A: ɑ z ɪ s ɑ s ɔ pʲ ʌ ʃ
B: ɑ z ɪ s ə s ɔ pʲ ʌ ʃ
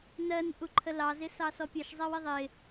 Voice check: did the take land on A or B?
A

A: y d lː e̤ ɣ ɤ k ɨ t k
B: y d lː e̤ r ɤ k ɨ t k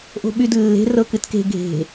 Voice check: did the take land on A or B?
B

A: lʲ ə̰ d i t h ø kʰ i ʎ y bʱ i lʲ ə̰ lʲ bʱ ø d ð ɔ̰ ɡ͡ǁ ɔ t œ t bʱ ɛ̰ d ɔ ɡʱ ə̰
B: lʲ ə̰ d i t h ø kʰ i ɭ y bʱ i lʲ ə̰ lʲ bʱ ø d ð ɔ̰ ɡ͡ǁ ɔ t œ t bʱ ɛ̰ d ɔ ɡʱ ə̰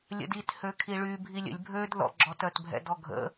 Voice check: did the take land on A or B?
B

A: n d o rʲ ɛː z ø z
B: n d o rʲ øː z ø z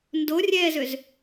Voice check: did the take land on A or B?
A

